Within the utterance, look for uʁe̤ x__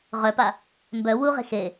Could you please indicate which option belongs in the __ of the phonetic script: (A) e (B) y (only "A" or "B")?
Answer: A